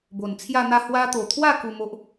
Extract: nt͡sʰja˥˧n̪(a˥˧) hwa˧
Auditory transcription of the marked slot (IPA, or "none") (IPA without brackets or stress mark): a˥˧